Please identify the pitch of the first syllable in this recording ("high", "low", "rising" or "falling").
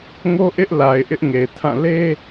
high